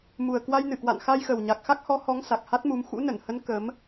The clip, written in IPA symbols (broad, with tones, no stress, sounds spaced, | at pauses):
m u˨˩ ə̯ k w a˧ j n ɨ˧˩ k w a̰˧˨ n x a˧ j x ə˨˩ w ɲ a˨˩ k̚ x a˦˥ k̚ h ɔ˨˦ h ɔ˨˦ ŋ s a˨˩ k̚ h a˦˥ t̚ m u˨˦ m x ṵ˧˥ n ə˧˩ n h ə˨˦ n k ə˨˦ m